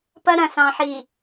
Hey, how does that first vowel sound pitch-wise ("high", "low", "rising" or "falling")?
high